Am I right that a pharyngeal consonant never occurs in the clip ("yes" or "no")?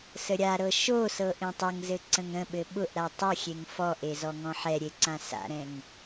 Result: no